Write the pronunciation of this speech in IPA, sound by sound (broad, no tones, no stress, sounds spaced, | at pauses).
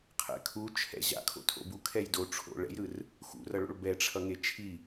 qʰ ɛ̰ kʰ u t͡ʃʰ ɛ̰ ʑ a̰ kʰ o̰ tʰ o̰ b u kʰ ɛ j d o ʈ͡ʂʰ o̰ ɭ ɛ̰ j ɾ ɯ r | x ṵ r ʌ ɭ o̰ ɭ b ɛ ʈ͡ʂʰ ʌ ŋ e t͡ʃʰ i